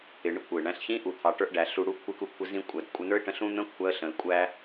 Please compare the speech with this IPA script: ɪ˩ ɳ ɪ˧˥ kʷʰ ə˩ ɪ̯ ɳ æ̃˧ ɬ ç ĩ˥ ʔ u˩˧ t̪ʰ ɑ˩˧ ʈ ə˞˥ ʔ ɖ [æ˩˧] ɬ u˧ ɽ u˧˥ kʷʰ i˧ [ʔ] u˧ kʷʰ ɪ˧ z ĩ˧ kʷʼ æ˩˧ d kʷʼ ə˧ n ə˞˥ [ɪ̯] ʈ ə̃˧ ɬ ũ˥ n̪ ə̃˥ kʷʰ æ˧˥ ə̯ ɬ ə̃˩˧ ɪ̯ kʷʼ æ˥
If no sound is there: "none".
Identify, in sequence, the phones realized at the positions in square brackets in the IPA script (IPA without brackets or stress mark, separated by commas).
æ˩˧, k, ɪ̯